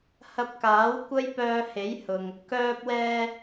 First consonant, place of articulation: glottal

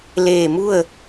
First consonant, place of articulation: alveolar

